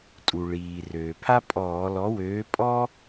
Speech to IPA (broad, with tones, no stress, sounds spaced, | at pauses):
tʼ u˩ ɭ iː˩ r øː˩ pʰ a˥ pʼ ɔː˧˩˧ l ɔ˨˥ w øː˨˥ pʼ ɔ˥